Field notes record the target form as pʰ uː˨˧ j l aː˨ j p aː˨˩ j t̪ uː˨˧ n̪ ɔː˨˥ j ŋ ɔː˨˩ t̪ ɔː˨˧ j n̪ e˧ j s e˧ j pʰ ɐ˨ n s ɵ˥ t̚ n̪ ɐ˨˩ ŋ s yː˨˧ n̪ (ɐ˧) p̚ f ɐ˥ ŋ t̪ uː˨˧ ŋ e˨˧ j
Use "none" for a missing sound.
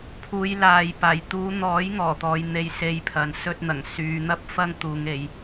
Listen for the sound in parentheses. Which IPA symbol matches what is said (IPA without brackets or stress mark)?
ɐ˥